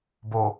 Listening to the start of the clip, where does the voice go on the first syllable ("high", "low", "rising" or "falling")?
low